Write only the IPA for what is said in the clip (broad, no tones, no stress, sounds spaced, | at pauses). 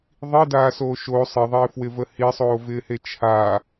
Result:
ðˤ i d aː s oː ʃ o sˤ ɪ ðˤ ɪː f w ɪ v ə h i sˤ oː v ɪː h e t͡ʃʰ a